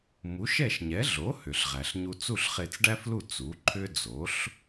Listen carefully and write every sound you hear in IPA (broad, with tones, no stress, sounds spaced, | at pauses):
m u˩˥ ʃ ɛ˥˩ ʃ ɲ ɛ˩˥ ɮ o˩˥ h ʏ˩ ɬ ʁ æ˩ ɬ ɲ u˧ t͡s u˥˩ ɬ χ e˧ t͡s ɖ æ˥ f l u˥˩ t͡s u˩˥ ǃʰ ʏ˥ d͡z o˩˥ ɬ